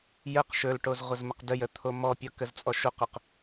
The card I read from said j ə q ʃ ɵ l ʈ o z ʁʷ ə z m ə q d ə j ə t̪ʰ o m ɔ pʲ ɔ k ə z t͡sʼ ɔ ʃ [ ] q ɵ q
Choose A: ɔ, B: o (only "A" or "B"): B